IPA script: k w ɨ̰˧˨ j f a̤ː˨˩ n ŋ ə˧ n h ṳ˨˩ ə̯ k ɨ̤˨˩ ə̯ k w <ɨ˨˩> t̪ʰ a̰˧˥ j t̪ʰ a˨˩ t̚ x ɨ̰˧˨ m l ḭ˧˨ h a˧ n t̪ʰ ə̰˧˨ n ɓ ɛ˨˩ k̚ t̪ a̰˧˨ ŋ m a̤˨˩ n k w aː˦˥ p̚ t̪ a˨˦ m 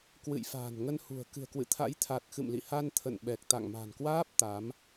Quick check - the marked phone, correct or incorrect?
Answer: incorrect: ɨ̰˧˨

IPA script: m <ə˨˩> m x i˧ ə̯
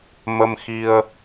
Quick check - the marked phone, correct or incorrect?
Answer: incorrect: ə˧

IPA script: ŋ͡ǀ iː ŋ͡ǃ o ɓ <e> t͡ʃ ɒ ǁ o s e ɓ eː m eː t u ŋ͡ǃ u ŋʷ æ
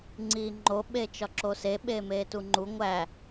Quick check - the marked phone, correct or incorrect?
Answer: correct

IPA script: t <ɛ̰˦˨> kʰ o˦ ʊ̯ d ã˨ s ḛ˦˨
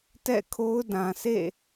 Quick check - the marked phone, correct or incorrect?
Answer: correct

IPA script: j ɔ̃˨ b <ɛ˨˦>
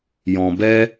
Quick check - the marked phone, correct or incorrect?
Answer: incorrect: ɛ˦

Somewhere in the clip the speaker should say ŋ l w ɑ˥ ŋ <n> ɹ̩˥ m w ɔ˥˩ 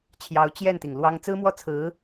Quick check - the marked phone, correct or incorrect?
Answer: incorrect: t͡s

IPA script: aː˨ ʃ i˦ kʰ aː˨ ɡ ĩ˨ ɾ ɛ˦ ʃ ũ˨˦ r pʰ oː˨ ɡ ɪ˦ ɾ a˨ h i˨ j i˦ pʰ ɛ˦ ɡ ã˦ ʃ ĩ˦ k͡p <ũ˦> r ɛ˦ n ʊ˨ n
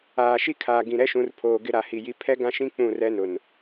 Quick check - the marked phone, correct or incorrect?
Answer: incorrect: ũ˦˨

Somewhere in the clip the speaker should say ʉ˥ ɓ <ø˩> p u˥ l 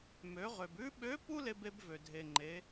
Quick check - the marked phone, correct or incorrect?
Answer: incorrect: ø˧˥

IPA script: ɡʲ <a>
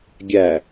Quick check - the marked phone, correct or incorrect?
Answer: incorrect: æ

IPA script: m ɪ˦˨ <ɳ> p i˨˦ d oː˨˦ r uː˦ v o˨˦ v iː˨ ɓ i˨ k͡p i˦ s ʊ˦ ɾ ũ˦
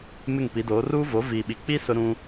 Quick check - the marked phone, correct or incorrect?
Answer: incorrect: ŋ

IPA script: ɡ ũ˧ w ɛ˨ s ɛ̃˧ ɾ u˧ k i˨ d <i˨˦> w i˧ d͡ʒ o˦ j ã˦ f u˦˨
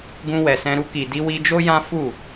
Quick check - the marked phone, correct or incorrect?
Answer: incorrect: i˧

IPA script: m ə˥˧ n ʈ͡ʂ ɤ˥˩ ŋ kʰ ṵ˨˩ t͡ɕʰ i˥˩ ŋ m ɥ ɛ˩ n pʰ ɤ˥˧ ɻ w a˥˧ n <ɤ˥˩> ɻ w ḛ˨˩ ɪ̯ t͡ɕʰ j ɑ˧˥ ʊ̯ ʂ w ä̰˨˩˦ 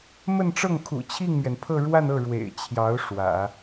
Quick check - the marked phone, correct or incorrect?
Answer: correct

